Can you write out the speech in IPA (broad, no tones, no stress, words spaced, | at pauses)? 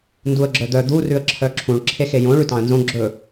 nduə̯ɡ͡ǁœd̪œ d̪u rʉə̯ǁʰœǁʰũɭ ǁʰexejõ ɭʉtɑ̃ə̯nzõ ɡ͡ǁɵ